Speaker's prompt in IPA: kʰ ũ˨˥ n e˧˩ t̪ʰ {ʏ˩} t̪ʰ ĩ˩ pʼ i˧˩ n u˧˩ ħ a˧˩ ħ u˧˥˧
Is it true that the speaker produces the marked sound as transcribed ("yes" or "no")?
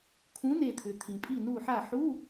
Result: yes